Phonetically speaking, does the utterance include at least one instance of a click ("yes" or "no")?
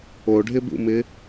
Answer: no